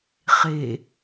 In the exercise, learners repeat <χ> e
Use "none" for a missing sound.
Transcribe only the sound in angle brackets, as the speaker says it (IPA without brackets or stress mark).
χ